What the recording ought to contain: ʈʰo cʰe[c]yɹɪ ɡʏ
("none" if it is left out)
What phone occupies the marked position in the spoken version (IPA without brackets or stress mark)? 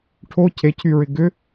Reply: cʰ